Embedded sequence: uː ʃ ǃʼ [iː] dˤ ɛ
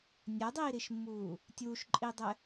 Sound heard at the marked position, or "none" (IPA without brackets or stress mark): iː